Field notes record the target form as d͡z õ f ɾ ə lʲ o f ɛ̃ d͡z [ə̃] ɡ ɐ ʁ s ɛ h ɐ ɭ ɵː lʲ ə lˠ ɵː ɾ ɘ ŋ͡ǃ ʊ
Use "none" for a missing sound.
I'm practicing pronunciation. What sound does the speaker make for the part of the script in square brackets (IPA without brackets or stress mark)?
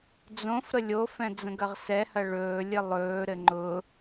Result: ə̃